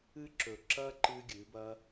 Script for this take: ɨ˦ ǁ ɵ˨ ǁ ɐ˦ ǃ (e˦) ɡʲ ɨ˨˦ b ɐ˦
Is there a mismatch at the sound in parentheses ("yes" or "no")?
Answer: yes